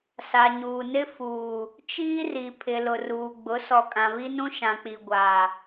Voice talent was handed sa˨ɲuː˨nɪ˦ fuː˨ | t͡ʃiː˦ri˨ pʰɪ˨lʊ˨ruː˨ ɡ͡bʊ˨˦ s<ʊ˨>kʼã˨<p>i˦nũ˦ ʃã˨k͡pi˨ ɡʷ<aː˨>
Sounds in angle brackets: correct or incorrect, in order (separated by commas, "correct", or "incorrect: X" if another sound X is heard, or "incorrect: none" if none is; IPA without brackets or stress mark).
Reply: incorrect: ɔ˨, incorrect: β, correct